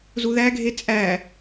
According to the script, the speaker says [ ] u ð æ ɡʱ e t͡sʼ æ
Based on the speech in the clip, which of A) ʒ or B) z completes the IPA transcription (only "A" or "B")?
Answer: B